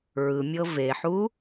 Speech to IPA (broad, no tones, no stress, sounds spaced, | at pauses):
ɹ ɯ mʲ ɤ v e ħ u